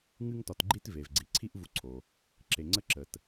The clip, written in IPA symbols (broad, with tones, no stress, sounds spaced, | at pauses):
ŋ ɨ˦ ŋ t ɒ˨ t ɡ͡ǃ i˦ t v e˩ v ɡ͡ǀ i˩ ǀʰ i˦ ʔ v u˨ ǀʰ o˩ | ǁ e˨ ŋ͡ǀ ə˥ ǁ ə˨ t